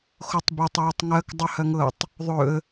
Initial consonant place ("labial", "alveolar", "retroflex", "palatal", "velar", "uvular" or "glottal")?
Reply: velar